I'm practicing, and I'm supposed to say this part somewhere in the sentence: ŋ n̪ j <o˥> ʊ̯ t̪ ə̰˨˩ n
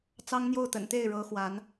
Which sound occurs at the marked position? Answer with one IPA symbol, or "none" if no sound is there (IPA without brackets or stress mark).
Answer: o˥˩